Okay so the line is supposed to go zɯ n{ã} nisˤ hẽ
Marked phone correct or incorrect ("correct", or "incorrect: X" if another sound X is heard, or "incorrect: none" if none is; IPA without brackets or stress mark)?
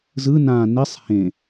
correct